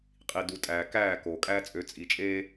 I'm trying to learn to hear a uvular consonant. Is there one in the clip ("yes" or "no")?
yes